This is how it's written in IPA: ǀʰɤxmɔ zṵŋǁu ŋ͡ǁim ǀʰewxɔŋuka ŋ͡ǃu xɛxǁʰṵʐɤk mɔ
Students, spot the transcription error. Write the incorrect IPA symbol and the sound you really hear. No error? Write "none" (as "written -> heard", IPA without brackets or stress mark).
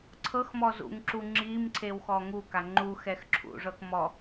none